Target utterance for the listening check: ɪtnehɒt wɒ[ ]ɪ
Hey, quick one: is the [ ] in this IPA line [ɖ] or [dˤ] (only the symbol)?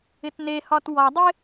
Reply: dˤ